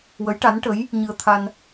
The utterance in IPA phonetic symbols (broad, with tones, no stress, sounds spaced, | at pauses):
w ə˧˥ j ʈ a˧˥ n ʈ ə˧˥ j | ɲ ɨ˧ ə̯ t̪ʰ a˧ n